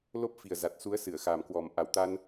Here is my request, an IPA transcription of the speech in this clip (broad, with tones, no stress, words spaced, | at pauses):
lo˦˥p̚fi˨˩ə̯ za˨˩t̚su˨˦ə̯ sɨ˧˩ə̯xa˨˩mkwɔ˨˩m ʔa˧˩wt̪a˧n